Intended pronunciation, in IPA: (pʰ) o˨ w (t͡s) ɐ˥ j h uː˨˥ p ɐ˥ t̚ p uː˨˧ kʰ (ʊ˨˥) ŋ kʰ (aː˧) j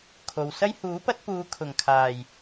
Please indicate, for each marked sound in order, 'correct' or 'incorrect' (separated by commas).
incorrect, incorrect, incorrect, incorrect